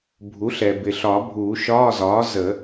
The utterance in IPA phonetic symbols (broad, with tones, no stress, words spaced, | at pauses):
bʱu˩˥ɬɛ˩ bɪ˩ɬɒ˨˩˦ bʱuː˨˩˦ʃɒː˧˥˧zɒː˩˥ zə˨˩˦